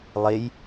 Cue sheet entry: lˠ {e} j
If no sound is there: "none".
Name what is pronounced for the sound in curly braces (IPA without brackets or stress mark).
e